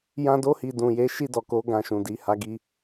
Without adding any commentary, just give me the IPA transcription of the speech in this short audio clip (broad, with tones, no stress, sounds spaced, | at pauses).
j ã˧ d o˧ h i˨ d ũ˨ j e˨˦ ʃ i˦˨ d ɔ˨ k o˨˦ ɡ ã˧ ʃ ũ˨ d i˨˦ h a˧ ɡ i˧